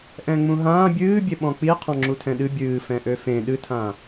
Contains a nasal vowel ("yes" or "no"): yes